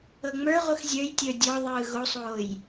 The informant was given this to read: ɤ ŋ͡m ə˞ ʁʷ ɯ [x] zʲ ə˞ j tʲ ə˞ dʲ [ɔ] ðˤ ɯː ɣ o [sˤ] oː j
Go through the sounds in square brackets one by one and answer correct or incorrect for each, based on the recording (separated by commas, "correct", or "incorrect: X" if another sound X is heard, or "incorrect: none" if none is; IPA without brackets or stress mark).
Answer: correct, correct, correct